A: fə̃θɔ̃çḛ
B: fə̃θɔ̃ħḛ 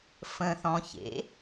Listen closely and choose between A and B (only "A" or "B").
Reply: A